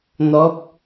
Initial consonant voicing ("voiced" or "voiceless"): voiced